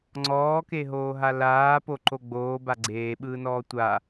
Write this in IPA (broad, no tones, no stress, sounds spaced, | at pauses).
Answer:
ŋ͡ǀ ɔː k e ɦ oː ɦ a l aː p o ǃ o ɡ͡b oː b a ɡ͡ǀ eː ɓ ɯː n ɔː tʷ a